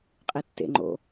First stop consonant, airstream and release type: ejective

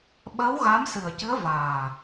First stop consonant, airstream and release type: implosive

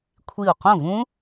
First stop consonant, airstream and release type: aspirated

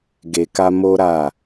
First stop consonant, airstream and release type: plain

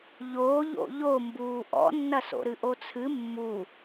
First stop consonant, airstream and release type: plain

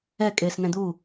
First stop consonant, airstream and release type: ejective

